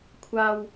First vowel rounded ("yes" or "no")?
no